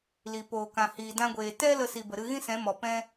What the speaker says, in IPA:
l i˨ p oː˨ k ã˨ h iː˨ d ã˧ ɡʷ eː˨ t ɛ˦ l ə˦˨ s i˨ b ə˨ ɾ ɨ˧ ɣ ĩ˦ s ɛ̃˨˦ m ɔ˨ p ɛ̃˦

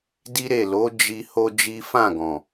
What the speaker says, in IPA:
d i˦ ɾ e˦˨ l o˨˦ d͡ʒ i˦ h o˦ d͡ʒ i˦ f ã˦˨ ɡ ɔ̃˨

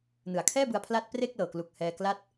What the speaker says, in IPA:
n ɯ˩˦ a̯ kʰ ɛː˥˩ b ɯ˧ a̯ pʰ l a˦˥ t̚ p r e˥˩ k̚ l ɤː˨˩ k l u˨˩ k̚ h ɛː˧ k l a˥˩ t̚

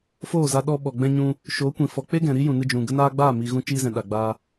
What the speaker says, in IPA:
f oː˦˨ z a˧ ɗ ɔ˧ ɓ ɔ˨ ɡ͡b ɛ̃˧ ɲ ũ˧ | ʃ oː˨˦ kʷ ĩ˨ f ɔ˨ k͡p e˦ ɡ ɛ̃˨ ɾ i˦ j ũ˨ n ɨ˧ d͡ʒ ũ˨ ɡ ə˧ n aː˧ ɡ͡b aː˦˨ m i˨ ɣ ũ˧ t͡ʃ iː˧ z ɛ̃˨ ɗ a˨ ɡ͡b aː˧

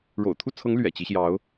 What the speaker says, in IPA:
ɻ o̰˨˩ ʊ̯ t̪ʰ u˥˩ t͡sʰ ɤ˧˥ ŋ l ɥ ɛ̰˨˩ t͡ɕ i˧˥ ɕ j ɑ˧˥ ʊ̯

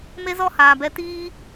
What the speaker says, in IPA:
m e˦ z ɔ˦ h aː˨ b ɛ˧ t iː˦

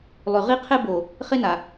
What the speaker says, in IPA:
lˠ y˨ ʁ i˦ qʰ e˦ b o˨ | χ e˦ n a˨

